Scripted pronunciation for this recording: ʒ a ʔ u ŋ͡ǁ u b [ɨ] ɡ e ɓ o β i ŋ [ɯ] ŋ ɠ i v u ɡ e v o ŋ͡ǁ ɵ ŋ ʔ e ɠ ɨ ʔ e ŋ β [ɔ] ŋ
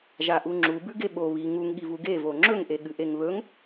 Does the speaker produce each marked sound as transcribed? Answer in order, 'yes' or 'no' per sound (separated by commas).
no, no, no